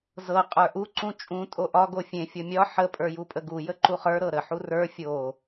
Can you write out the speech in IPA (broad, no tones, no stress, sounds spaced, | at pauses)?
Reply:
z ɤ qʼ ə˞ ʔ u ǀ ũ t͡ʃʼ ũ tʼ o ʔ ɒ ɡ o fʲ ẽ fʲ ɤ mʲ ɒ ħ ə pʼ ə˞ j u pʼ ə ɡ u j ə ǃ u χ ə˞ ɾ ɤ ɾ ə ħ u r ə˞ fʲ o